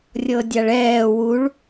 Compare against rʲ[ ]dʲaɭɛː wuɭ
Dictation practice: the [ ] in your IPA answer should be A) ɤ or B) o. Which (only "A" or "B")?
A